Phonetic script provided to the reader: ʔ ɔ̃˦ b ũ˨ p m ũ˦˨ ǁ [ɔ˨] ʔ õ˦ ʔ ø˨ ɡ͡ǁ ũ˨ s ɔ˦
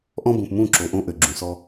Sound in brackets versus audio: incorrect: o˨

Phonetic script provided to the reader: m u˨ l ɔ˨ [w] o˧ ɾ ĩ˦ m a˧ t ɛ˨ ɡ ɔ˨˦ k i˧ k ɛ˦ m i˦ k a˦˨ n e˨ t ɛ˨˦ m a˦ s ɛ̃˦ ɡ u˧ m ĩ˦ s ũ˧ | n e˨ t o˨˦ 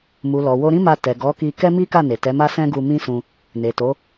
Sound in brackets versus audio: correct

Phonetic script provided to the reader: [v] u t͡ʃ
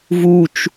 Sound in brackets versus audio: correct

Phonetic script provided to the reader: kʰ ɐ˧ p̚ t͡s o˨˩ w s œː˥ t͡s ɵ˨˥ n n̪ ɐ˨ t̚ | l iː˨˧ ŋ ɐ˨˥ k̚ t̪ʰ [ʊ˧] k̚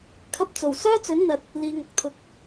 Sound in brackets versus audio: correct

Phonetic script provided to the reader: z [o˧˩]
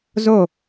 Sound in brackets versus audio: correct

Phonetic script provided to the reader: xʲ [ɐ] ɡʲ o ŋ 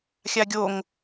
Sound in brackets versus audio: incorrect: a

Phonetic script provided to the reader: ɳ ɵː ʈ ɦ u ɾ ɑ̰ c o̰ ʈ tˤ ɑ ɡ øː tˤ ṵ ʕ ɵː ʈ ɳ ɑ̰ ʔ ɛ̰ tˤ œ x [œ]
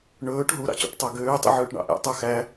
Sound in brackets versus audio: incorrect: æ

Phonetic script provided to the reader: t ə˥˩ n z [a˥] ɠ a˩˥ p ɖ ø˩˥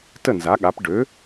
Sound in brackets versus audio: incorrect: a˩˥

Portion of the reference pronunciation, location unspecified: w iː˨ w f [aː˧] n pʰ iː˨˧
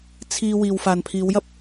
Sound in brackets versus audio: incorrect: aː˨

